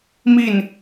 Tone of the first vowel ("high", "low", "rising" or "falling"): falling